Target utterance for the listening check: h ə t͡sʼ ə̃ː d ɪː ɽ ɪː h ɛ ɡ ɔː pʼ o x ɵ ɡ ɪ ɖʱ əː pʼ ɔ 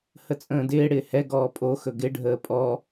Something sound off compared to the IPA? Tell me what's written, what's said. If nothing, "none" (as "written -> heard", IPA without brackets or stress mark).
none